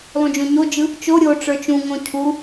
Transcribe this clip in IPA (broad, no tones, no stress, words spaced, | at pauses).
lˠũd͡ʒõɲod͡ʒɯ | t͡ʃo ɾʲo ʈ͡ʂə˞t͡ʃũŋõ cʰu